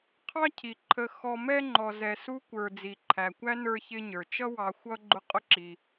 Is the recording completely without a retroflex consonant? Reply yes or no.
yes